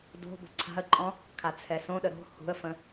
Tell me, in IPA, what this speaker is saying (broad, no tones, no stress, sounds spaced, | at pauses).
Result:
d o̤ b ə̤ ǀʰ a̤ ə̯ ǃʼ ɔ̃ | kʰ a t͡sʰ ɛ s õ ɗ ə ɾ o̤ h ṳ ə̯ f ə̃